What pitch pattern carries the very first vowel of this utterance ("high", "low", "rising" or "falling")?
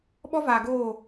high